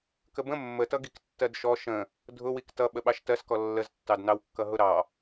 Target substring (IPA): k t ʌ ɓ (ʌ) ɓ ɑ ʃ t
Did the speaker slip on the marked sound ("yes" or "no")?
yes